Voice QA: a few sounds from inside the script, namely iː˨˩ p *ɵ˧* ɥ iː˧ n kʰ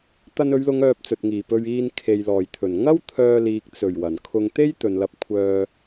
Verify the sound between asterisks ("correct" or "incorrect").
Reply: correct